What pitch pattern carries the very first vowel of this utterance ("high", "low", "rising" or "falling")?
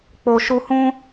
low